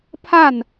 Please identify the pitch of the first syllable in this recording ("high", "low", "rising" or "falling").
falling